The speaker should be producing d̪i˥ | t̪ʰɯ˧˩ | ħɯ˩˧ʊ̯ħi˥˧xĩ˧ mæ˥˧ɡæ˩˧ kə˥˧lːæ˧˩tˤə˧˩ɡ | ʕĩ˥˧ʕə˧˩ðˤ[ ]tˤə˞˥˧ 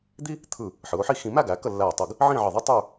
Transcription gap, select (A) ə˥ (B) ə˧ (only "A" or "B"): A